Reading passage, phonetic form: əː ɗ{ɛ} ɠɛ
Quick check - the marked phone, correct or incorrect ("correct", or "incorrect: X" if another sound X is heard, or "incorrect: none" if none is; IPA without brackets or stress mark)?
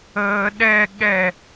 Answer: correct